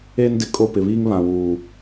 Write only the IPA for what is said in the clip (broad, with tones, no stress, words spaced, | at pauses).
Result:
eː˦ndɪ˨ kʼo˦˨pɪ˨βiː˦ŋ βã˨wuː˨